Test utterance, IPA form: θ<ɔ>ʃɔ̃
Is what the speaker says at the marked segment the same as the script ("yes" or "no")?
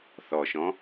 yes